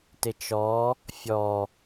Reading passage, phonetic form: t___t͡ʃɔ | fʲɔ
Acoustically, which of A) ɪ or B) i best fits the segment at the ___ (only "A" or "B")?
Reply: A